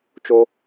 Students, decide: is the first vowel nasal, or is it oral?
oral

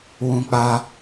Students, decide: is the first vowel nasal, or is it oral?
nasal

